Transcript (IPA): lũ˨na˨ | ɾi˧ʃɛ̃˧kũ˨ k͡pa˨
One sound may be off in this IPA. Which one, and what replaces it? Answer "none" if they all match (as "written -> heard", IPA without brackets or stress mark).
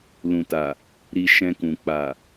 n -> t